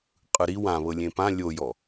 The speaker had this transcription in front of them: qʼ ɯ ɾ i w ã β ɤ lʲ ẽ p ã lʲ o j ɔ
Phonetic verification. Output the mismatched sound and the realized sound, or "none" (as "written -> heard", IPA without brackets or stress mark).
none